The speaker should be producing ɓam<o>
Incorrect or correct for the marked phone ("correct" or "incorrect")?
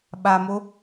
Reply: correct